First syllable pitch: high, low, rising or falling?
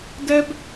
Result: high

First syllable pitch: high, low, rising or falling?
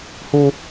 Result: high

